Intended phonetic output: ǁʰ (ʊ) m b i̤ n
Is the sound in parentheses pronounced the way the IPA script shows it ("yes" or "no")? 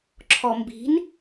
no